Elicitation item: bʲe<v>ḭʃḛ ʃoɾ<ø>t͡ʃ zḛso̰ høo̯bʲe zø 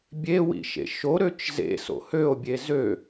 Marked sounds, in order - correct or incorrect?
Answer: incorrect: w, correct

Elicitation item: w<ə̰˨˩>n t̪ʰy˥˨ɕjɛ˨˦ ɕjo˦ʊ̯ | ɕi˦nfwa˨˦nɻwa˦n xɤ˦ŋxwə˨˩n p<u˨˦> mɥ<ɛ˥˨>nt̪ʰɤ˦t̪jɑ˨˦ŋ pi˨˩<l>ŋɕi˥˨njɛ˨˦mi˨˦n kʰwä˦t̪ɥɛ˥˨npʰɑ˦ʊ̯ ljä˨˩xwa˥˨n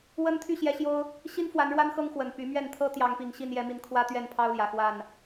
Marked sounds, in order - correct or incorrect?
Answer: incorrect: ə˦, incorrect: y˨˦, correct, incorrect: none

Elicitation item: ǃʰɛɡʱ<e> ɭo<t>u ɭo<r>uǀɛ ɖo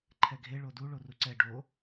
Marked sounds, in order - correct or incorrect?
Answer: correct, incorrect: d, correct

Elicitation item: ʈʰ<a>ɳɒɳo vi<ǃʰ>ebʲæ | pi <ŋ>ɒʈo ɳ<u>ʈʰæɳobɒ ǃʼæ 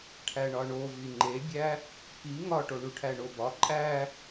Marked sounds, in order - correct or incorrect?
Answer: incorrect: æ, incorrect: ŋ͡ǃ, correct, correct

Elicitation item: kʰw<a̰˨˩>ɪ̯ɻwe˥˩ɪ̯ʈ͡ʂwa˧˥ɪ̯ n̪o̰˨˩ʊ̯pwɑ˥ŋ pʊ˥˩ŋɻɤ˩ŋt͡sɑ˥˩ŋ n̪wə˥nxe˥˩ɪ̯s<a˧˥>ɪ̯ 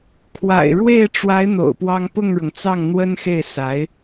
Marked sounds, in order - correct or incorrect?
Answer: correct, correct

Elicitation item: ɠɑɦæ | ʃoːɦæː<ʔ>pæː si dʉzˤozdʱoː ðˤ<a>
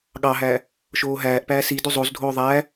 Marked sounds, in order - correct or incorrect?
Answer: correct, incorrect: æ

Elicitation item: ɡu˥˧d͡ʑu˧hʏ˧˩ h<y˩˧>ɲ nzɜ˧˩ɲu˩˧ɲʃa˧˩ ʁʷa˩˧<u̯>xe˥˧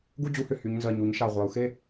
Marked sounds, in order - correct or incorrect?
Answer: correct, correct

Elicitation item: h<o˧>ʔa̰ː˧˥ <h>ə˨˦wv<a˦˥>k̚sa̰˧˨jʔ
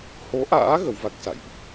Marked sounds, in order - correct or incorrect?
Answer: incorrect: o˨˦, incorrect: ɣ, correct

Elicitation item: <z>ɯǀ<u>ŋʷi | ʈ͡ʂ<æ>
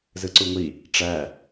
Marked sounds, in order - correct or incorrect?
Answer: correct, correct, correct

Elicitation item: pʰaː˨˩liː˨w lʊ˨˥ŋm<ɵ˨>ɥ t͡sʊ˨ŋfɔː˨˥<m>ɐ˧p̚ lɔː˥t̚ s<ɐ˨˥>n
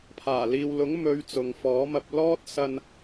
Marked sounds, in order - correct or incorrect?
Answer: incorrect: ɵ˨˧, correct, incorrect: ɐ˧

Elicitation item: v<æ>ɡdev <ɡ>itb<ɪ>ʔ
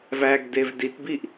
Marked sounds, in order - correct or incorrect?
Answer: correct, incorrect: d, incorrect: i

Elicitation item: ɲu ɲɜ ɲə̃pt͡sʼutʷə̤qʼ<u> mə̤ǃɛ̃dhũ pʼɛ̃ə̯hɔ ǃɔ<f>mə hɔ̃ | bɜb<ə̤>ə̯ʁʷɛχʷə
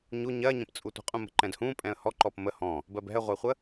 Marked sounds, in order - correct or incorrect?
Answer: incorrect: ũ, incorrect: p, incorrect: ɛ̤

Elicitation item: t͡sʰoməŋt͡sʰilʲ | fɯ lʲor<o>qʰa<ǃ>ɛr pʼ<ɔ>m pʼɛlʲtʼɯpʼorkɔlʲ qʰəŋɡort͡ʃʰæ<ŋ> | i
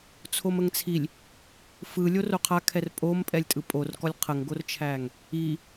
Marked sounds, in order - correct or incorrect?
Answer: correct, incorrect: kʰ, incorrect: o, correct

